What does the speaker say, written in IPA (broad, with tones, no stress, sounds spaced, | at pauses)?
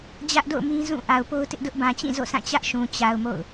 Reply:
d͡ʑ ä˦ ʔ d o̰˦˨ ʊ̯ m ĩ˦ z ũ˦˨ ʔ a˨ ʊ̯ p o˦ ʊ̯ t ɪ˦ ʔ d ʊ˦ ʔ b ã˨ t͡ɕ ĩ˦˨ z o̰˦˨ s ã˦˨ t͡ɕ ä˦ ʔ ʃ ũ˨ t͡ɕ a˨ ʊ̯ m o̰˦˨ ʊ̯